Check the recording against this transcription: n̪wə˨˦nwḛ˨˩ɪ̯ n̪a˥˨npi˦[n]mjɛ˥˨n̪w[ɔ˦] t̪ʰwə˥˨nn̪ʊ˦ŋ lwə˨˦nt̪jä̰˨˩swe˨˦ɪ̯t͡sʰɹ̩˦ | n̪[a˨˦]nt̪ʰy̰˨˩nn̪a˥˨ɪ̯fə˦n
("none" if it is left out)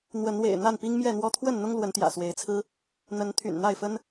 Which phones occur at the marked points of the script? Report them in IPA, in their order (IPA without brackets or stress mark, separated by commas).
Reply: ŋ, ɔ˦, ə˨˦